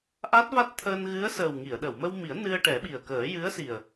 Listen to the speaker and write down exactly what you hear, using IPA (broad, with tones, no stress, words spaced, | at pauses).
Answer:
ʔa˦˥t̚va˦˥t̚t̪ʰəː˧n ɣɨ˧˥ə̯ səː˨˩wŋi˨˩˨ə̯ ɗə˨˩˨wmə˧wmi˨˩˦ə̯ nɨ˧ə̯ʈɛ˨˩˦ɓi˨˩ə̯kəː˨˩˦ jɨ˧˥ə̯si˨˩ə̯